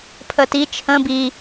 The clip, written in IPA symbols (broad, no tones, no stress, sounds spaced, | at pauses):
pʰ ə t i t͡ʃʰ ə̃ b i